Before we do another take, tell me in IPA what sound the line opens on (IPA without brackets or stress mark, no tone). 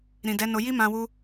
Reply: ɾ